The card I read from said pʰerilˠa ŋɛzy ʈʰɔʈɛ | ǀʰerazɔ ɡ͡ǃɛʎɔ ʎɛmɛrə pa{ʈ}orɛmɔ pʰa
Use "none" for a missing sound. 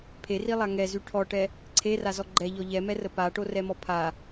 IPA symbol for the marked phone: ʈ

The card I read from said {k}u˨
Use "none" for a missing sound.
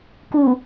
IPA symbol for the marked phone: k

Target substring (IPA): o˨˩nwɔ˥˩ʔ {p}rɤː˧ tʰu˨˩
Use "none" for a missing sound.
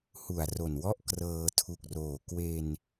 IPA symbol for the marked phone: k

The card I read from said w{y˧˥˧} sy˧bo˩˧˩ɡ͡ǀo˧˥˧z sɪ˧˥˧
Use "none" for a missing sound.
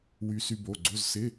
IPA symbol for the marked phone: y˧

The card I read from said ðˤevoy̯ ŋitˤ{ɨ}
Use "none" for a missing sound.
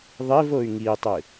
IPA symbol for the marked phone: ɨ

